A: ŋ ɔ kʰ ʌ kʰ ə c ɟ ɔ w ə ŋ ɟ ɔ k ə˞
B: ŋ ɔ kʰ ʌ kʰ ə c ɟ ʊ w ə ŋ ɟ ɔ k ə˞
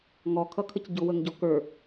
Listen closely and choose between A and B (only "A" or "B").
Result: B